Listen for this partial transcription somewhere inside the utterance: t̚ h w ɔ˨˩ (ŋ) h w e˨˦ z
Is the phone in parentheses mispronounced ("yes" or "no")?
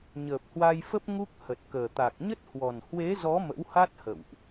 yes